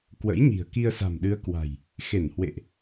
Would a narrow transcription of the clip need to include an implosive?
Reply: yes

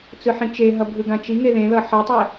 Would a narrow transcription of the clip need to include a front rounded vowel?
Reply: no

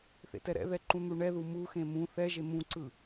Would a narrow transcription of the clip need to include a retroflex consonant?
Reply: yes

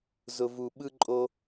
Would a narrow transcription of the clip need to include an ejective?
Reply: yes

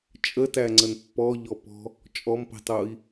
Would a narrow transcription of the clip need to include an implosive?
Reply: no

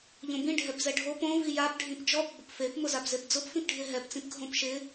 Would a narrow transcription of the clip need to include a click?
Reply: no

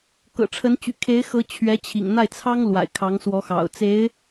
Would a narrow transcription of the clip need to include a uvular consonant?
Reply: no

